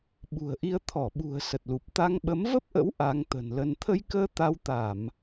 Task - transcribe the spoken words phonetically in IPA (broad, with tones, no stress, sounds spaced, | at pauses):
ɓ ṳ˨˩ ə̯ ʔ i˧ ə̯ t̪ʰ ɔ˧˩ ɓ ṳ˨˩ ə̯ s ə˨˩ t̚ l u˨˩ p̚ t̪ a˧ ŋ ɓ ə˨˦ m v ə˦˥ p̚ ʔ ə̰˧˥ w ʔ a˨˦ ŋ t̪ ə̤˨˩ n l ə˧ n t̪ʰ ə˧ j k əː˧ t̪ a˧ w t̪ a˧˩˨ m